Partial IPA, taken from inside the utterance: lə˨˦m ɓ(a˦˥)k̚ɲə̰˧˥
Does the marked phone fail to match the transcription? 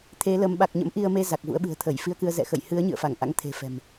yes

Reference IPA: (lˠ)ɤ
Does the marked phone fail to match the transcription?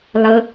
no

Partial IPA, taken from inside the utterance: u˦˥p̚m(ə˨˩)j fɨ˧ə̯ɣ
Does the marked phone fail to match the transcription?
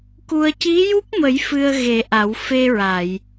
yes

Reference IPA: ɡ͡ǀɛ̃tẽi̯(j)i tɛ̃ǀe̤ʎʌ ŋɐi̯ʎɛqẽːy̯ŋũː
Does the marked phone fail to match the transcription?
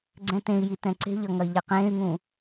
no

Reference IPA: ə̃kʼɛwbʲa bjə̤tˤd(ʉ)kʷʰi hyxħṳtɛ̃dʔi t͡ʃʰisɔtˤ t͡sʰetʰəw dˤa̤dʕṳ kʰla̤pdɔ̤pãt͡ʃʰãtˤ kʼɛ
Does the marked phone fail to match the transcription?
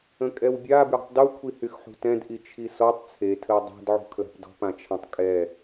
yes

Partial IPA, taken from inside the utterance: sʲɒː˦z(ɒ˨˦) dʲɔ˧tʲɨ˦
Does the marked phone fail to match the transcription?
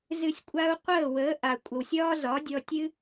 no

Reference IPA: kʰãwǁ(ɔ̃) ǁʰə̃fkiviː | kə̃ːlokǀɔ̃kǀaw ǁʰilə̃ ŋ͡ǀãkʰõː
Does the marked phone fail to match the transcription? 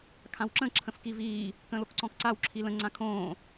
yes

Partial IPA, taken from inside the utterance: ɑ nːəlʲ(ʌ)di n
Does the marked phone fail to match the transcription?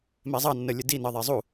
yes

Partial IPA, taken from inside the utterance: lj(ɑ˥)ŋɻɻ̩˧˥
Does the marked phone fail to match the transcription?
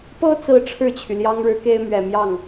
no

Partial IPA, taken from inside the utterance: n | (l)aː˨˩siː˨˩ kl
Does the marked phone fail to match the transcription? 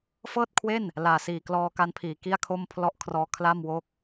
no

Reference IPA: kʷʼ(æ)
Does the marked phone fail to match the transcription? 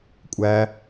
no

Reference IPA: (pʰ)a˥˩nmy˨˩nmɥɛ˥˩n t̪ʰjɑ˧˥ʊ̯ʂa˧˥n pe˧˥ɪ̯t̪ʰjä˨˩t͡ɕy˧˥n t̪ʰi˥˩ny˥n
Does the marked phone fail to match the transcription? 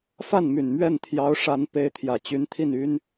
yes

